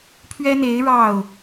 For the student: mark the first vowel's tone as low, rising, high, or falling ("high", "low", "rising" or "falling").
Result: high